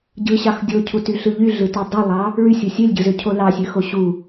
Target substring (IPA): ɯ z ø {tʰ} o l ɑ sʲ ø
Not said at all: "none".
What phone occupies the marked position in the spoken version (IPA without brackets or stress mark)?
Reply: cʰ